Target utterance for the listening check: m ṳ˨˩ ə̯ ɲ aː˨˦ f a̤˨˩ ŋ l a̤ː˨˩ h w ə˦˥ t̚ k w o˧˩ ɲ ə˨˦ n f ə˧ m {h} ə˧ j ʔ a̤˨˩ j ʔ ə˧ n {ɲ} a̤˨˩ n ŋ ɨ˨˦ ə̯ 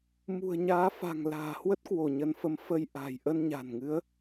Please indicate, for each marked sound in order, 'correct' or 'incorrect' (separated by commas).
incorrect, correct